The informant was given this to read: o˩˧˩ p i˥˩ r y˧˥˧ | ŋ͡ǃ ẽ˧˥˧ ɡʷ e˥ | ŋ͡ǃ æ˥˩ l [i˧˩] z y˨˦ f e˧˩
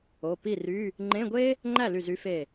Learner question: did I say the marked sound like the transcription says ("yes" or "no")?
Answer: no